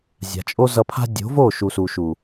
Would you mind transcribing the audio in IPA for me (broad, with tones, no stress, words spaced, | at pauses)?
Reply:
zʲa̤˨t͡ʃʼo˦zʌ˧pʰa̤˦ dʲo̤˨˦vo˦˨ʃu˨ su˨ʃu˨